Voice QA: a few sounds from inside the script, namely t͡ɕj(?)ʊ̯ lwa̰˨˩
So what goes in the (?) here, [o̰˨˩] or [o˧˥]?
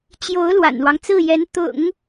o˧˥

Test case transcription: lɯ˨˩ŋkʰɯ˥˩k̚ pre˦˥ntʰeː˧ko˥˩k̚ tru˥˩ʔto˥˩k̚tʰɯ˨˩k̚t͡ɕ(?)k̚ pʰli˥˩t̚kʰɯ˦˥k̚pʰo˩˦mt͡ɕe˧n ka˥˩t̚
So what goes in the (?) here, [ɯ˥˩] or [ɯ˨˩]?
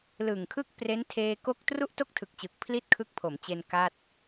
ɯ˨˩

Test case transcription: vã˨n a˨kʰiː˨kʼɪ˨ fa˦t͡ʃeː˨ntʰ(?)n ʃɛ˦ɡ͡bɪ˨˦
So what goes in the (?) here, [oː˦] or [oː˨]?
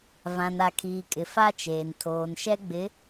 oː˨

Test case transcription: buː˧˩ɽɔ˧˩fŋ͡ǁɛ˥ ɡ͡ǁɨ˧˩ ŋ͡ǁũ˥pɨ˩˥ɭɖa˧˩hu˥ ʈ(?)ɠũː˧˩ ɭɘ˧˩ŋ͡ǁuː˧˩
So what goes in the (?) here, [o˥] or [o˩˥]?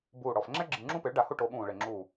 o˩˥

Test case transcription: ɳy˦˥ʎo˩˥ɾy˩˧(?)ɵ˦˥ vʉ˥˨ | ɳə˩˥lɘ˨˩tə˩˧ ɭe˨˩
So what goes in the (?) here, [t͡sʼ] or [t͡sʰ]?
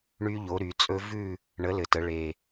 t͡sʼ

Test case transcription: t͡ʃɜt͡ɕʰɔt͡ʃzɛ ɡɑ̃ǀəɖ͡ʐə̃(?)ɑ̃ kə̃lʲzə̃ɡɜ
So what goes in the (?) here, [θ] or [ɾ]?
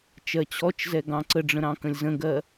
ɾ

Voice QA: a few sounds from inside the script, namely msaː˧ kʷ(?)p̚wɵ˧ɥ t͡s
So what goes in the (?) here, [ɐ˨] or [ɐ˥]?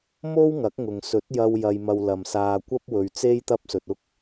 ɐ˥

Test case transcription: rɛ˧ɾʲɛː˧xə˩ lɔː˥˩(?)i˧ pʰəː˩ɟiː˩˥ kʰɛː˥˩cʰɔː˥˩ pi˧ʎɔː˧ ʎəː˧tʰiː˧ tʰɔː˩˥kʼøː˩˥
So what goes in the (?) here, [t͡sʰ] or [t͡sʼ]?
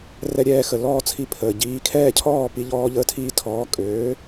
t͡sʰ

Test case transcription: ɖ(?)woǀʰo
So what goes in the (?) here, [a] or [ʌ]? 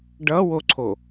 ʌ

